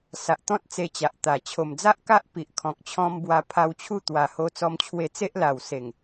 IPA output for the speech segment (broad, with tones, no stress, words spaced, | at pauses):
sa˨ʔt̪ɔ̃˦t̚ t͡se˧t͡ɕa˨ʔt̪a˨˩ t͡ɕʰo˨˩md͡za˦ʔka˦ʔ pi˨ʔkʰɔ̃˨k̚t͡ɕʰɔ̃˧m bwa˧pʰa˧wt͡ɕʰu˥˧ t̪wa˨˩ho˧t͡sɔ˧mt͡ɕʰwe˧ t͡se˦ʔla˨˩wse˨˩ŋ